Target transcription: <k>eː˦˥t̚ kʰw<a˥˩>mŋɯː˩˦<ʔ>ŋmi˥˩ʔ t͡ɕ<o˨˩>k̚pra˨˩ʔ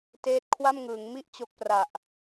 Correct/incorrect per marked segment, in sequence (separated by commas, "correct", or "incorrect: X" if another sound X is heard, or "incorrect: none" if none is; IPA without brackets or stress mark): incorrect: t, correct, incorrect: none, incorrect: o˦˥